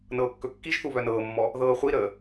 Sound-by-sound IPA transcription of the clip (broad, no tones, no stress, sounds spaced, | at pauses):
n ɤː kː ɵ kː i ʒ θ u β œ n ɤː mː ɔ | ð ɤː χʷ i ɾ əː